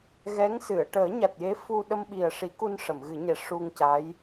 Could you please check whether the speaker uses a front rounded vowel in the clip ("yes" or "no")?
no